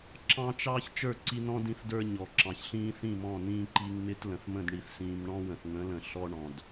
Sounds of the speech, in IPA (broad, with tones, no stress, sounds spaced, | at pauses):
ǁ ɑ̃˦ t͡ʃ ɑː˦ ç t͡ʃ ə˞˦˨ ǀ i˦ n ɔ̃˦ d ĩ˦ θ d ə˞˦ ɲ ɔ˨ ǁ ɑ̃˨ ç ɬ ĩː˦ θ ĩ˦˨ m ɔ̃˦˨ n ĩː˦ ǃ i˦ ŋ m ɪ˦ t l ə̃˨ θ m ə̃˦˨ d ɳ i˨ θ s ĩː˨ m ɳ ɔ̃˦ w ə̃˨ θ ŋ ə̃˨˦ l ə̃˨ ɬ ɔ˦ ɳ ɔ̃˨ d